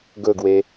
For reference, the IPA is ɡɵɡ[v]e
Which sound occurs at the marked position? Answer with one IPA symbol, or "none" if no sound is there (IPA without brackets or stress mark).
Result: w